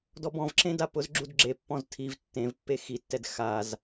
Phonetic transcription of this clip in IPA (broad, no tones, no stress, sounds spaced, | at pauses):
d ɔ b ɔ̃ v ǁ ẽ d a p ʊ z ɡ͡ǁ u d ɡ͡ǁ e pː ɔ̃ z tʰ i v tː ẽ v pː e x i tː ɛ d x a z